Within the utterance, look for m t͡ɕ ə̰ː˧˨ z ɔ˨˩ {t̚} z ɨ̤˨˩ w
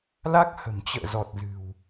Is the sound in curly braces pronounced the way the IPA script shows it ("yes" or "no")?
yes